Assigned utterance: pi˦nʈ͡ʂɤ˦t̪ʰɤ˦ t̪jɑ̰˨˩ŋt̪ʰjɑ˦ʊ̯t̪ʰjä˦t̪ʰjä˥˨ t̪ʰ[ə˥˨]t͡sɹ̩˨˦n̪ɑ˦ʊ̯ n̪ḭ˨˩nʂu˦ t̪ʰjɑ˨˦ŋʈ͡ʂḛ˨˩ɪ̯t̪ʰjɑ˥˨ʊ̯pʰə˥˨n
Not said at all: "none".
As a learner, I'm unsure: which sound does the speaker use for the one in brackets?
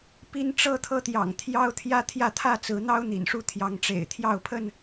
ä˥˨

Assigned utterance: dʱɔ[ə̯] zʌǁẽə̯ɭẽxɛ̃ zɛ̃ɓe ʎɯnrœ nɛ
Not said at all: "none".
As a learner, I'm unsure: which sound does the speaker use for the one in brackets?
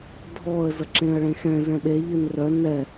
ə̯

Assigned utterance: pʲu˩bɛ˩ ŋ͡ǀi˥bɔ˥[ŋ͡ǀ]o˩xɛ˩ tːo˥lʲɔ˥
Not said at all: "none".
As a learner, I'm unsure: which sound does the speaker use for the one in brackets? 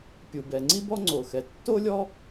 ŋ͡ǀ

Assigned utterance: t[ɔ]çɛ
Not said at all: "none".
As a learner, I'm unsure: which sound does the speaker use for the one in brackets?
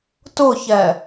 ʊ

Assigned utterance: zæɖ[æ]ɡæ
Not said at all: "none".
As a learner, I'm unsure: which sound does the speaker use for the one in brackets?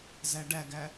æ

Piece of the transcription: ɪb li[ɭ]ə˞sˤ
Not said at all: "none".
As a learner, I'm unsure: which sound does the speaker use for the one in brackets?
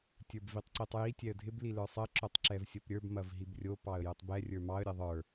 l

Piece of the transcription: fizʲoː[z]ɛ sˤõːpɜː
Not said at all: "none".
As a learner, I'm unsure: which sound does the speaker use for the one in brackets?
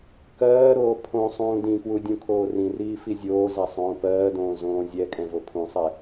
z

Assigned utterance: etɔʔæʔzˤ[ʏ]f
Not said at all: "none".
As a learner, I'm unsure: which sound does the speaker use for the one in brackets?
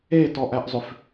ʏ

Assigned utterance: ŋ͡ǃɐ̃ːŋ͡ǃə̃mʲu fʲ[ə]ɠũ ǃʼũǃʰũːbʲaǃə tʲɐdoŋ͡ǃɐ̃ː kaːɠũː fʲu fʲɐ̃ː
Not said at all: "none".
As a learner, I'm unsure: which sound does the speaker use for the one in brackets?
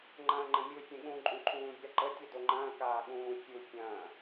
ə̃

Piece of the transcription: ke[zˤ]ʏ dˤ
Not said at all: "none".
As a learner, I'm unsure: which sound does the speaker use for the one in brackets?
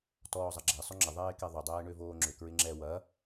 ðˤ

